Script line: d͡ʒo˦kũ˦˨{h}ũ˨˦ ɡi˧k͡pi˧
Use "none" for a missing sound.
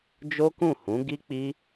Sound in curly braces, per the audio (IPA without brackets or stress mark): h